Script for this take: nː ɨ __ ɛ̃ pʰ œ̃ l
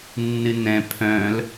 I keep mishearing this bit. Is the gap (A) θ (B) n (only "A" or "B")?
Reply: B